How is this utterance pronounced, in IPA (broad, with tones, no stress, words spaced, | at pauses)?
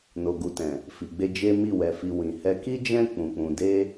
no˨ɡu˨tɛ̃˨ | fi˨ɡ͡be˧ d͡ʒe˦mi˦˨wɛ˧fi˧ wĩ˨ hɛ˧ki˦d͡ʒɛ̃˦ k͡pũ˧k͡pũ˧ de˦